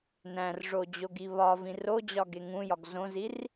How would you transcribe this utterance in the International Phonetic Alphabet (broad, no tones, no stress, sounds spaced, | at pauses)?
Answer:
n æ̃ r ʐ o d͡ʑ o ɡ i β ɒ v ĩ r o d͡ʑ ɒ ɡ e ŋ ũ j ɒ ɡ z õ z i r